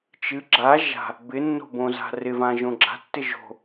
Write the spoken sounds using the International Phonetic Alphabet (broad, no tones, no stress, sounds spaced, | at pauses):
t͡ʃ ɨ ɡ͡ǁ a ʒ a̤ | b ɪ nː o̤ b õ z a̤ r ɪ v ã ʒ õ ɡ͡ǁ a̤ tː ɪ ʒ o̤